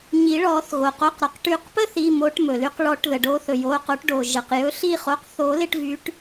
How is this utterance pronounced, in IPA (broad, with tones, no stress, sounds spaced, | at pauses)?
ɲ i˨˩˦ ɭ ɔː˨˩˦ θ ɣ o˩ q o˩˧˩ q ɾ ɔ˩ q ʈ y˨˩˦ q p ə˥ θ i˩˧˩ m o˨˦ ʈ m ɵ˩ l y˨˦ q ɭ ɔ˨˩˦ ʈ ð ə˩ ɖ oː˨˦ θ ɵ˩ j oː˩˧˩ q o˨˩˦ ʈ ɖ oː˩ ʒ ə˩ q j ɵ˨˦ ɬ i˦˨ χ o˩˧˩ q θ o˨˩˦ l ɪ˦˨ ʈ v y˨˦ ʈ